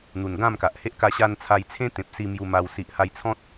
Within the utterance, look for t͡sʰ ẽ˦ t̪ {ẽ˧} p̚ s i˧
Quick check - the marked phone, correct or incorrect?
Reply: incorrect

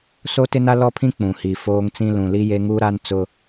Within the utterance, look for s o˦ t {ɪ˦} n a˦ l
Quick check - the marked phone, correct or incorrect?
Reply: correct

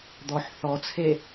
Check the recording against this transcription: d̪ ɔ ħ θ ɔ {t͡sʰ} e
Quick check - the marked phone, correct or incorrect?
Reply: correct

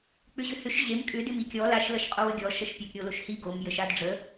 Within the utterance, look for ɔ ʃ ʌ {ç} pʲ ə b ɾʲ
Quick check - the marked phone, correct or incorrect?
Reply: incorrect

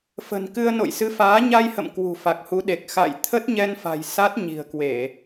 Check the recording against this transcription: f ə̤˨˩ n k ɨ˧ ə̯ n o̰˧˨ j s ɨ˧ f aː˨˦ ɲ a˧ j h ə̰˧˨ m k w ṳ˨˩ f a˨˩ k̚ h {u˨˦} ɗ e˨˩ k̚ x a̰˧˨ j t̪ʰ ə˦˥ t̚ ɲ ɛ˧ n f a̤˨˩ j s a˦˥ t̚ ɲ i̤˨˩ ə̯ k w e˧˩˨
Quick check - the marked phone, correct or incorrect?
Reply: correct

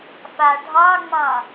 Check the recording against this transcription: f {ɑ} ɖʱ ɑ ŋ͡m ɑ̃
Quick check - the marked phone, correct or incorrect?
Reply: incorrect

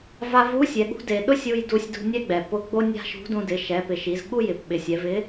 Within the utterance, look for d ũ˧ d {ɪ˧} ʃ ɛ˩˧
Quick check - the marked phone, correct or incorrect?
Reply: incorrect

